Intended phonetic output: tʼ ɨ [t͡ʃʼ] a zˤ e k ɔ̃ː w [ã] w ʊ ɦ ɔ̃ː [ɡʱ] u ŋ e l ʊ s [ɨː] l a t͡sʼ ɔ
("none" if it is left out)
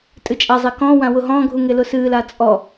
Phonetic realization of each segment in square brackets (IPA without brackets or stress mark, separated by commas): t͡ʃʼ, ã, ɡʱ, ɨː